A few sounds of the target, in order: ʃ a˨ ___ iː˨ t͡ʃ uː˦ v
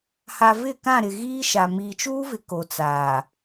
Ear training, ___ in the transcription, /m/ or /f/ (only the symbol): m